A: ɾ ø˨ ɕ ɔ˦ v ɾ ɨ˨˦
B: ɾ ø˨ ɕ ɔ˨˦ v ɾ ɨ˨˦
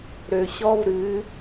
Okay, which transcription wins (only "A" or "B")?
A